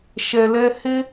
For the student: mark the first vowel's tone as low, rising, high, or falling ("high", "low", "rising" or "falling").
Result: low